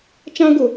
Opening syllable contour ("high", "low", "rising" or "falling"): high